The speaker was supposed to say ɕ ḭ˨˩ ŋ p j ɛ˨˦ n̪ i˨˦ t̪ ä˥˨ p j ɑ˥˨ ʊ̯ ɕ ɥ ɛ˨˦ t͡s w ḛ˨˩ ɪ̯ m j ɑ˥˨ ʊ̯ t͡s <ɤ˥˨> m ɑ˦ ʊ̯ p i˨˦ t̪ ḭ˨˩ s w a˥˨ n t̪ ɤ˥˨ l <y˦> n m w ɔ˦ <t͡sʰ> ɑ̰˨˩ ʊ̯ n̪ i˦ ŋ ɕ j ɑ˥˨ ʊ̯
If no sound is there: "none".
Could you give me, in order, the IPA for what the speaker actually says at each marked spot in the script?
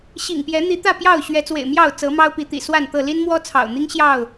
ɤ˨˦, i˦, t͡sʰ

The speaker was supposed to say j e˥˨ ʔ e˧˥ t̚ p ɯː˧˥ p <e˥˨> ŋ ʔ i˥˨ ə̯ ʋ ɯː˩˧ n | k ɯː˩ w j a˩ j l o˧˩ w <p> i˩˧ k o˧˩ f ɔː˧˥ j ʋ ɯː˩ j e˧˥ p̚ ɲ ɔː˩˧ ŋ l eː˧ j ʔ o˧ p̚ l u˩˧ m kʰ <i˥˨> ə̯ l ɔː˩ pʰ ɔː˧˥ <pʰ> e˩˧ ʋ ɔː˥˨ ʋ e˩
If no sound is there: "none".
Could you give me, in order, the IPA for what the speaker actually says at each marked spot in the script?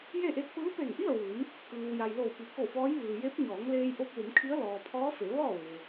e˧˩, p, i˧˥, f

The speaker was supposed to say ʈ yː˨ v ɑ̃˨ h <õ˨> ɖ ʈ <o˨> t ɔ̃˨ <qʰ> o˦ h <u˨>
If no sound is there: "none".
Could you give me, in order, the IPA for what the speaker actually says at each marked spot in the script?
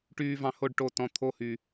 o˨, o˨, t̪ʰ, y˨

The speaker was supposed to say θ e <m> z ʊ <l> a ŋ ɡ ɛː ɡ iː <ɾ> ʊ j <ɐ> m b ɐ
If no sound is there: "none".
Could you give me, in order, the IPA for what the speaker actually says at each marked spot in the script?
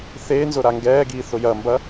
n, ɾ, θ, ɐ

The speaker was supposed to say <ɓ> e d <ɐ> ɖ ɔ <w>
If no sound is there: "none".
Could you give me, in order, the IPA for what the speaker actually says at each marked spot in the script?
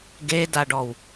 ɡ, a, w

